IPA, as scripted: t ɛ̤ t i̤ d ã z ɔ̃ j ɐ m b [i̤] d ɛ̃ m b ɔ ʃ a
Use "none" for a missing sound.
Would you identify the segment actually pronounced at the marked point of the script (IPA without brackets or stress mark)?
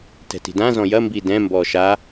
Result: i